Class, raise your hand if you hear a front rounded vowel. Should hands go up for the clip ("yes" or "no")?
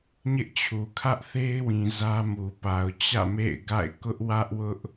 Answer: no